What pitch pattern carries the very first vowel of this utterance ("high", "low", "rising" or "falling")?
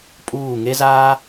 falling